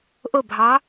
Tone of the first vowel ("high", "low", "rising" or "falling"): falling